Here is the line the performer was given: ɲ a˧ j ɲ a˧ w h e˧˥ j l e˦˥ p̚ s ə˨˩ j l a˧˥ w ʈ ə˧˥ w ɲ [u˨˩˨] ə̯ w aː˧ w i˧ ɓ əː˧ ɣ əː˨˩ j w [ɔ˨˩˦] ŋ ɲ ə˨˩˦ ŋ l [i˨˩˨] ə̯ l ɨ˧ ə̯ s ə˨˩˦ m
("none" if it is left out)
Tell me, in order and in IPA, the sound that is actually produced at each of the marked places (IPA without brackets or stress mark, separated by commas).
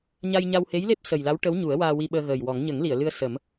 u˨˩˦, ɔ˨˩˦, i˨˩˨